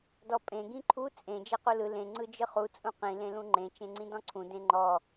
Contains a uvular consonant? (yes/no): yes